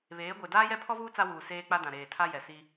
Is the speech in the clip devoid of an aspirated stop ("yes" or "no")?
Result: no